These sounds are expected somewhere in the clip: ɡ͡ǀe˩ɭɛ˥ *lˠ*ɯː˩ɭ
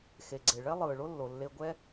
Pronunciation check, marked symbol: correct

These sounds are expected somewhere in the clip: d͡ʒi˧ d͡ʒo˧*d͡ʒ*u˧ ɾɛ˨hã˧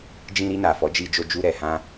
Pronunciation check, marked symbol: correct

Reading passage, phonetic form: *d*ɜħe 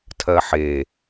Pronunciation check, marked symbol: incorrect: tʰ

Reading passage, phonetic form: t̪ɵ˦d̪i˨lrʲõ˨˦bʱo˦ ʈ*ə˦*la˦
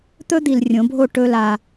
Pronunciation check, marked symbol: incorrect: ɵ˦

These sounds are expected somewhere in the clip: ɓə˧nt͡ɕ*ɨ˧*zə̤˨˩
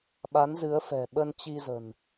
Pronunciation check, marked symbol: incorrect: i˧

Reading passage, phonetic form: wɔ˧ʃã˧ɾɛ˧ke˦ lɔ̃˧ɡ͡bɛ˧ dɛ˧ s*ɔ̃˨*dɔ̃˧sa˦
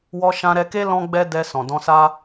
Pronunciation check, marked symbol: correct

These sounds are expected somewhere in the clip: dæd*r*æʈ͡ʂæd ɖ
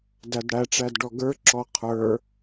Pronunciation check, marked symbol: incorrect: ɽ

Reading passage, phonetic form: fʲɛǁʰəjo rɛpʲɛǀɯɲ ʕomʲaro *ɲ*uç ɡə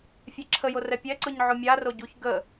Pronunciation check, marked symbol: incorrect: ɟ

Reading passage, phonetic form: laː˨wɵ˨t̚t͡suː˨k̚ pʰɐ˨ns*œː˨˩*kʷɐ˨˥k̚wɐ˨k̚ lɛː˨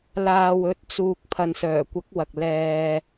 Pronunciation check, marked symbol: correct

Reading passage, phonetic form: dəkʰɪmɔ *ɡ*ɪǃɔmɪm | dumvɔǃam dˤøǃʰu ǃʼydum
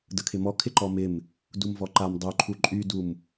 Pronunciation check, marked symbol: incorrect: kʰ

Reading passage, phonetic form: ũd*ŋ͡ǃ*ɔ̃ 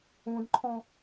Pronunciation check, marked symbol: incorrect: ǃʰ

